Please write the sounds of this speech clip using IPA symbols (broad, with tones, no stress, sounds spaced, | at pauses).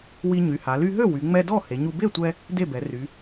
w i˧ ɲ y˩˧ h a˩˧ l y˧ ɦ ø˥˩ w y˩˧ ŋ͡m ɛ˧ d ɔ˥˩ h e˩˧ ɲ u˧ b e˥˩ tʷ ɛ˧ | d e˥˩ b ɛ˩˧ r y˩˧